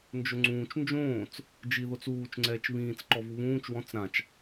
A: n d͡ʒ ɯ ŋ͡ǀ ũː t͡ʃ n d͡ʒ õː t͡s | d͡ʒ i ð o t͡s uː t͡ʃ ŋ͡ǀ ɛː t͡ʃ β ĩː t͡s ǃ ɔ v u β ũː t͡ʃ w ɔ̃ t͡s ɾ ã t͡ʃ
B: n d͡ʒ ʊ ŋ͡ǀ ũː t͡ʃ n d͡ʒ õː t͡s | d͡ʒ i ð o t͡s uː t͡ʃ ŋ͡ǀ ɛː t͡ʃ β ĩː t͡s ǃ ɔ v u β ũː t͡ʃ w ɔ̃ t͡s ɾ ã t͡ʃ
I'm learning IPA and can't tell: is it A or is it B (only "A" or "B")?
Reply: B